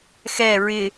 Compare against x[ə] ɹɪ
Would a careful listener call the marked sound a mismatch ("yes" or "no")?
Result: yes